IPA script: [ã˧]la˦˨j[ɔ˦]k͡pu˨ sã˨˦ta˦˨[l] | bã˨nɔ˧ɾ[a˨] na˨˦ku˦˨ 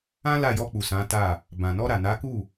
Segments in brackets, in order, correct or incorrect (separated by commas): incorrect, incorrect, incorrect, correct